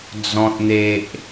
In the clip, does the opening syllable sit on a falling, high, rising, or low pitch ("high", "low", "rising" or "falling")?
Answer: low